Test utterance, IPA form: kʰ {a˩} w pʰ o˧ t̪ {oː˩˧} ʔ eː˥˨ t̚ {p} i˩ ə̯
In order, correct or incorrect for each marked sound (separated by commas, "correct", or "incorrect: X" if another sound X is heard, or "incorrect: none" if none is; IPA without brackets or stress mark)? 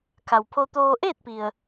correct, incorrect: oː˧, correct